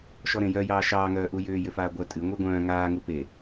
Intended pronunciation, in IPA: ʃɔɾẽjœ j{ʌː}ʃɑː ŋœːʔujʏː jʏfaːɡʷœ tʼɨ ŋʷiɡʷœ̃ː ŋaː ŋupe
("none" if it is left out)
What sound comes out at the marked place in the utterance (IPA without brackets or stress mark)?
ɑː